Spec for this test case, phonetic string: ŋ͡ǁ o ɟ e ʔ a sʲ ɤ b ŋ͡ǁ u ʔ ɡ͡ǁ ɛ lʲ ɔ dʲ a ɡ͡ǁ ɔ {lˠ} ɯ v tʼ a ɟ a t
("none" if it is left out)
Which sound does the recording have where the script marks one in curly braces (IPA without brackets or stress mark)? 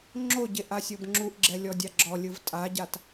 lʲ